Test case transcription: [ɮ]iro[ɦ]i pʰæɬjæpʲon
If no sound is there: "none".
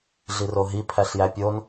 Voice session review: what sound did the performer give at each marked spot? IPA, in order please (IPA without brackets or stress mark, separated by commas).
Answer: ɮ, ɦ